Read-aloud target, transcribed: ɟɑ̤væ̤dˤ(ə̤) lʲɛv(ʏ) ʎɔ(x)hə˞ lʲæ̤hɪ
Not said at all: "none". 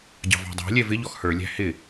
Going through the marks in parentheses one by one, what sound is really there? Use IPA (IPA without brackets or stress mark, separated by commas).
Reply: æ̤, ɪ, x